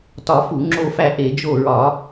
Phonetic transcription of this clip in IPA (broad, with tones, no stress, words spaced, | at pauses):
tɒ˧˩˧fu˧˩˧ ŋ͡ǁo˦˨fæ˦˨ʔe˧˩˧ d͡ʒo˦˨ɹɒ˧˩˧